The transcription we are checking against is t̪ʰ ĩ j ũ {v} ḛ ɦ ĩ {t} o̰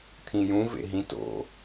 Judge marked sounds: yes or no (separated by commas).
yes, yes